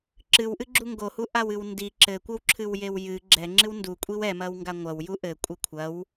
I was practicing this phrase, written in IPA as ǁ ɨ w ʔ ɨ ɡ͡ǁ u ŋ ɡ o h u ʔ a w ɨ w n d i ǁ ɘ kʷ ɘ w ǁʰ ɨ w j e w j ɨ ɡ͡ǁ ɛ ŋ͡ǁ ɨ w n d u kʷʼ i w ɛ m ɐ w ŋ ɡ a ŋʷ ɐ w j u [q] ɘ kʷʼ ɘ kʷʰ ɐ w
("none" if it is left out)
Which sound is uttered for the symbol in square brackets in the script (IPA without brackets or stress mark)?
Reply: ʔ